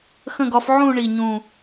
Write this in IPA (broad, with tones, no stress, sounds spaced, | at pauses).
x ə̃˥˧ ɡ ɒ˧˥ f ʕ ũ˥˧ ɳ i˥˧ ɲ ũ˥˧